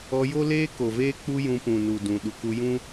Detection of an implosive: present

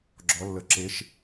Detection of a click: present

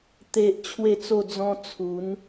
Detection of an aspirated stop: present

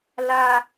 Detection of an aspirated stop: absent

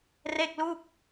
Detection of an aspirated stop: absent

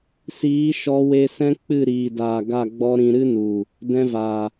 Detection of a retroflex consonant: absent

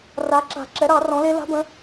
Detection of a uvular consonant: absent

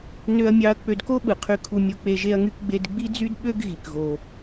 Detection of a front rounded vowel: present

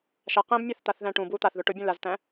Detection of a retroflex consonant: present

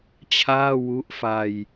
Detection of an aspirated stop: present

